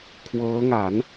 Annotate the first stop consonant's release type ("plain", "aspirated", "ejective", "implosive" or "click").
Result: aspirated